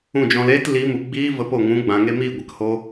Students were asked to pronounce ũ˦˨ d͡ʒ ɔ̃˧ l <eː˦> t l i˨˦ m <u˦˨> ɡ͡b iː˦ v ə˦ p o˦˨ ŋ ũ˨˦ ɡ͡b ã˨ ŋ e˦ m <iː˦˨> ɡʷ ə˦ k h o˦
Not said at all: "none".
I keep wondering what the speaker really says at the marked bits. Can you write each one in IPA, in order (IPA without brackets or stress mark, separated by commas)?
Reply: eː˦, u˨, iː˦˨